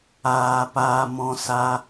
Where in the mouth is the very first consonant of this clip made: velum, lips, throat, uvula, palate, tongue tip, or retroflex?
lips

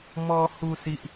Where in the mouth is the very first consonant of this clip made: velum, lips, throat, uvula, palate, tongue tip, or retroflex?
lips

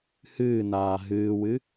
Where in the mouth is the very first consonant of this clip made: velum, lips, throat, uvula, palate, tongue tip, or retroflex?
throat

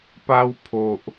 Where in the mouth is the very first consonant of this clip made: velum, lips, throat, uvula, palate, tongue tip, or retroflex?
lips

